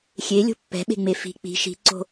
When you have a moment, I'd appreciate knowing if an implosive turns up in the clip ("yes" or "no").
yes